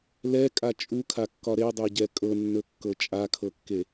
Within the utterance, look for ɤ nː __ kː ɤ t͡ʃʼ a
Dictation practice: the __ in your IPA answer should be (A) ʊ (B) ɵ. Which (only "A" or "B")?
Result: B